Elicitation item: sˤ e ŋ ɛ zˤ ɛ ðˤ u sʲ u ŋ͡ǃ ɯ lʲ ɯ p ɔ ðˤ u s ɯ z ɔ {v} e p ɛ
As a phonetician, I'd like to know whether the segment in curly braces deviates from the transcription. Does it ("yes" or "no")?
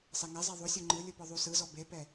yes